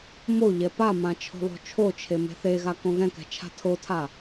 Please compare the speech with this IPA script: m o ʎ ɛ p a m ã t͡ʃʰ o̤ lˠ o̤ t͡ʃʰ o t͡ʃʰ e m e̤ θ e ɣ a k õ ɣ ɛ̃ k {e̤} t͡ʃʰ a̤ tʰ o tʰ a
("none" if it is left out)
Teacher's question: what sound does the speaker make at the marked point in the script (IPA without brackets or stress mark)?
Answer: ɛ̤